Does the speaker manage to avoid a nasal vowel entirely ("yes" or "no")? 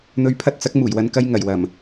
yes